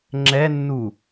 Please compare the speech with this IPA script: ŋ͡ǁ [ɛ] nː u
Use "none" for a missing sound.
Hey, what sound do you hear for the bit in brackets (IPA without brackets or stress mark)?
ɛ